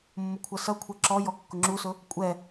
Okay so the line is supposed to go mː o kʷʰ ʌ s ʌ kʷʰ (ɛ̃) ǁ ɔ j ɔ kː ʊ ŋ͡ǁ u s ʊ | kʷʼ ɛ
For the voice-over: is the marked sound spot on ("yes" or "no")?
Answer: no